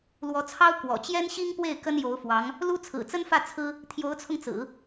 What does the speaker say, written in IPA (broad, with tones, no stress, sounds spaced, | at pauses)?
l w ɔ˧˥ t͡sʰ ɑ˥ ʊ̯ k w ɔ̰˨˩ t͡ɕ j ɛ˥ n ɕ i˥ ŋ p w e˥˩ ɪ̯ k ə˥ n j o˧˥ ʊ̯ f w ɑ˧˥ ŋ | l u˥ t͡sʰ ɹ̩˨˩ t͡s ə˥ n f ä˥˩ t͡sʰ ɹ̩˥ | t̪ʰ j o˧˥ ʊ̯ t͡sʰ ʊ˧ ŋ t͡s ɹ̩˨˩˦